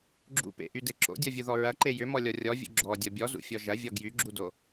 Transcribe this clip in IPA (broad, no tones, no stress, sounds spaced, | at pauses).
ɡ͡ǁ ṵ p ḛ ʔ y d e ǁ o̰ dʲ ɔ vʲ u ð ɔ ɹ ɐ ǃ e j ʏ m ɔ lʲ ɔ rʲ ɔ vʲ ṵ ɡ͡ǁ ɔ dʲ ɔ bʲ ɔ z ṵ fʲ ɔ ʒ ɐ vʲ ɔ ɡ j y ɡ͡ǁ u d o